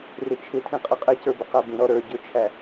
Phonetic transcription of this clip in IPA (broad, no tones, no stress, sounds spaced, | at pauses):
r ɪ t͡ʃʰ ɪ tʰ ĩ qʼ ʌ qʼ ɪ c ə˞ b ʊ q æ b ĩ ɾ ɔ ɾ ə˞ ɟ ʊ t͡ʃʰ æ